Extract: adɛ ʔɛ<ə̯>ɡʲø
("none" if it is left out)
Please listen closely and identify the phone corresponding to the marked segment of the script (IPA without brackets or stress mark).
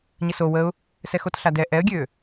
ə̯